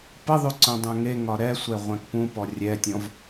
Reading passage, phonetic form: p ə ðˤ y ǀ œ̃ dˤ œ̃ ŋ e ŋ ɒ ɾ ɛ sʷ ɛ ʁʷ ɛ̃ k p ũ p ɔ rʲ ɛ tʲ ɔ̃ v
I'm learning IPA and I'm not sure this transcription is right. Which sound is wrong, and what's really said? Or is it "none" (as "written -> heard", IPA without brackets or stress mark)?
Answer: none